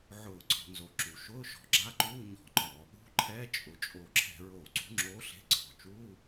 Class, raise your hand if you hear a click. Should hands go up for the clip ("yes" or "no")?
yes